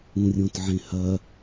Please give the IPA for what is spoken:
ũrʲõtʕẽhɐ

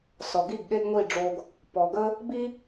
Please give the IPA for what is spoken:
sɔ˨ɡi˦˨ɡ ɠe˦ɡŋʷi˦˨ɖ͡ʐo˧ɡ | pɔ˨ɡə˦ | bi˦

